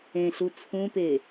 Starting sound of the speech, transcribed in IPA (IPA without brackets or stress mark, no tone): ẽ